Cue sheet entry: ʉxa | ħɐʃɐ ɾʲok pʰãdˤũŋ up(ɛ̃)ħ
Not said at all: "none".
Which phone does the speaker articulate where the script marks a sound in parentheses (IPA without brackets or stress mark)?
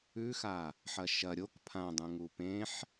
ẽ